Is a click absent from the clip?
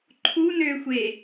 no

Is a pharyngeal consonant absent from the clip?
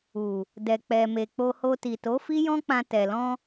yes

